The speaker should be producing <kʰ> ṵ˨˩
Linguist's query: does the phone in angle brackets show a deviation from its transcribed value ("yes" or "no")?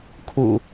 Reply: no